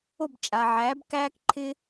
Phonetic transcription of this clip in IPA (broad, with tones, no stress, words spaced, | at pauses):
o˦˨bt͡ʃʼa˨ʕæː˨˦b kæː˦kǃʰɪ˦